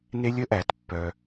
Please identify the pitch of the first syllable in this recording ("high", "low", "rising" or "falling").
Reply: high